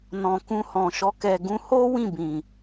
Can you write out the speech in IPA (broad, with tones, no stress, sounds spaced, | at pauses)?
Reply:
n ɔ̃˨ k ũ˧ h ɔ̃˨ ʃ ɔ˧ k ɛ˨ ɡ ũ˧ h o˦ w ĩ˦˨ b ĩ˨